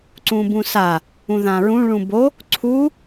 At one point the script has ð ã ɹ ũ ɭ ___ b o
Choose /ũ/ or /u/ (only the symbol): ũ